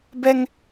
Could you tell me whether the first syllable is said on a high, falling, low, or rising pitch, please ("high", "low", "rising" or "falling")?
high